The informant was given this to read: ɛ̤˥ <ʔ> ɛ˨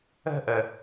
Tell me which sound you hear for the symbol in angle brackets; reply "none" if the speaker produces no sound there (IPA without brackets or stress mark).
ʔ